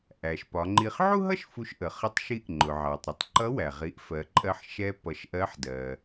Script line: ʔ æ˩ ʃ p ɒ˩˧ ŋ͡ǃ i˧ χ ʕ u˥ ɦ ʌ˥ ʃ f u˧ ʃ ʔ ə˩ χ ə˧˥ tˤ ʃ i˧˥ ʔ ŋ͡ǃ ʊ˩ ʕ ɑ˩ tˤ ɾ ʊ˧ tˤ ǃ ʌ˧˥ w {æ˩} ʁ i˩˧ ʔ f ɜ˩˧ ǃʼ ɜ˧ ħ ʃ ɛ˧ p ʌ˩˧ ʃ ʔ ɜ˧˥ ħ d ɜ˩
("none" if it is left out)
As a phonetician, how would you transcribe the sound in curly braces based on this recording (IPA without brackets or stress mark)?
æ˩